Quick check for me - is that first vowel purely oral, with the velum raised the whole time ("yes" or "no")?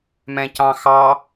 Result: no